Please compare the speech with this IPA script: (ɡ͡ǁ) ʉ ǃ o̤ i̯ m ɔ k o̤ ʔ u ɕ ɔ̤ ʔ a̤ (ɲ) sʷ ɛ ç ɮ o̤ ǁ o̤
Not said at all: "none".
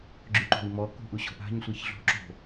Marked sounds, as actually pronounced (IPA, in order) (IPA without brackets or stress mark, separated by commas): ɡ͡ǁ, ɲ